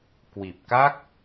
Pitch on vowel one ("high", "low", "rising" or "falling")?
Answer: low